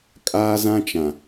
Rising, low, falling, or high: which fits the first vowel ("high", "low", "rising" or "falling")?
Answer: high